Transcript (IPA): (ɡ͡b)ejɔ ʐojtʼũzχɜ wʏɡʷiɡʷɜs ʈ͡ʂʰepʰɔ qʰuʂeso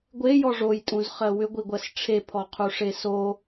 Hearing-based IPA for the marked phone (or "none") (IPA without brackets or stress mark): ɡʷ